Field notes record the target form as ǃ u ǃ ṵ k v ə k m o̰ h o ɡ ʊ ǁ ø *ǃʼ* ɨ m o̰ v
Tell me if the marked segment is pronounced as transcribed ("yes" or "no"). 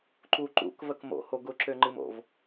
no